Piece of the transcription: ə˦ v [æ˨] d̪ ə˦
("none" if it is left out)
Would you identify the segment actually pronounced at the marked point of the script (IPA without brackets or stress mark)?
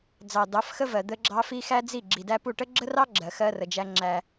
ɜ˨